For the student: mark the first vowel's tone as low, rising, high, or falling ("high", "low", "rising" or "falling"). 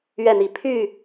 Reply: falling